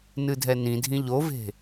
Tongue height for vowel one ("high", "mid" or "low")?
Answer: high